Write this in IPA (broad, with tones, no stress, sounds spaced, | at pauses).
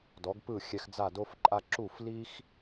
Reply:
d ɔ˩˥ ɡ p ɯ˥˩ xʲ ɛ˧ x d͡z a˥˩ d o˥ f ǃʼ a˥ ǁ u˥˩ f l i˥ x